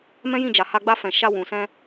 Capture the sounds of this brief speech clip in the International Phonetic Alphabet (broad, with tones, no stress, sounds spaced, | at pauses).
m ɛ̃˦ j ĩ˦˨ d͡ʒ a˨ h a˧ ɡ͡b a˧ f ɛ̃˨ ʃ a˧ w ũ˨ s ɛ̃˧